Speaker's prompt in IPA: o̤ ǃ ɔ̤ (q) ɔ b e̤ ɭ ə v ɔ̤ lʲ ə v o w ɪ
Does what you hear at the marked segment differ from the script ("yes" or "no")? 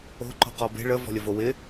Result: no